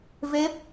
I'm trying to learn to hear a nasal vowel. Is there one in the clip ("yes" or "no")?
no